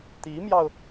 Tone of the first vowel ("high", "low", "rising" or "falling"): rising